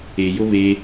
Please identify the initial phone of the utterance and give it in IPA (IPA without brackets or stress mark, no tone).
e